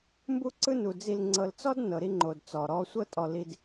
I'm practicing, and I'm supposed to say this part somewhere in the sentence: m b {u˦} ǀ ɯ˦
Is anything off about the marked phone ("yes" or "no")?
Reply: no